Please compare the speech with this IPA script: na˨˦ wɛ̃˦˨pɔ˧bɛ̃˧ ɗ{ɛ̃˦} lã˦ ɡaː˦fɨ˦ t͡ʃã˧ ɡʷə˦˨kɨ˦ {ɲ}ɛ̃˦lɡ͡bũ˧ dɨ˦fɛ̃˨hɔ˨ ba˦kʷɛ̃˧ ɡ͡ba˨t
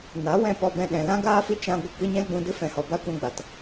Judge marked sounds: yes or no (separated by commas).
no, yes